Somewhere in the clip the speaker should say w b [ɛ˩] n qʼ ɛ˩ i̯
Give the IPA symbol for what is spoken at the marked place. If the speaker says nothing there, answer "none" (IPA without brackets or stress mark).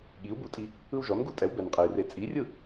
ɛ˩